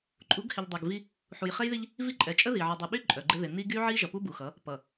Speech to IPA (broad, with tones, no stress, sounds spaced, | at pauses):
ǃʼ u˨˦ ɡ h ɪ˨ ʎ dˤ ɛ˨ ɡ v i˦ | ħ u˨ j χ ɛ˦ j ð i˦ ʎ | v i˦ ǃʼ ɛ˨ t͡ʃʼ ə˦ ð i˨ ʕ ʌ˨ dˤ ɪ˨ ɓ y˦ ǃʼ œ˨ ɡ͡ǃ ɪ˦ ð ɪ˨ n i˦ ɡ y˦ ʕ i˦ ʒ ʌ˨ p u˦ b u˨ x ʌ˨˦ | p ʌ˨